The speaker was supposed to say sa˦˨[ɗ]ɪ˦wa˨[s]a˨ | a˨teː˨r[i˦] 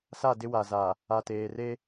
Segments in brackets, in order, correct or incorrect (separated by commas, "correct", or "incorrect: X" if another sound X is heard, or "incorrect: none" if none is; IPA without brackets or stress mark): incorrect: d, incorrect: z, incorrect: e˦